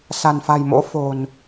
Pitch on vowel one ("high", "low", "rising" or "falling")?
low